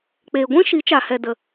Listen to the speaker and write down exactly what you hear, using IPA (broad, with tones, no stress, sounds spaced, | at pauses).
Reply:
k͡p eː˨ ɡʷ ĩ˦ ʃ i˨˦ t͡ʃ a˨ h ɛ˨ d ə˨